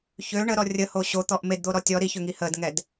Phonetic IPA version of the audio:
çø ɳəɾɔ rʲəho ɕot̪ɔʔ medd̪oɾɔ tʲɔ ɾiçøŋi hədŋɛd

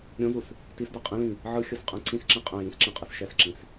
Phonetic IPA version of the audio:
ɾʲõzus | tisdɤ qʼĩlĩ | ʕɯxʲɤs qʼɛ̃ǀĩsǁẽ qʼɛ̃ jĩsǁẽ qʼɛsʃɛsǁĩs

